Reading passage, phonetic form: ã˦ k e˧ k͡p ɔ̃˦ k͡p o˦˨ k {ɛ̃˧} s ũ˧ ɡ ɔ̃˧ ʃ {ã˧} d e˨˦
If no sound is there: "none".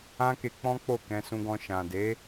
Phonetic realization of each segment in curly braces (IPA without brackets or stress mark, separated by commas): ɛ̃˧, ã˨